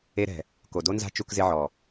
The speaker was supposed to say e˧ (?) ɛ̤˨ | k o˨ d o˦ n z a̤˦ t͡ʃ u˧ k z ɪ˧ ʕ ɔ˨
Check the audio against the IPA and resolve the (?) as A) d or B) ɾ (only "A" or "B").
B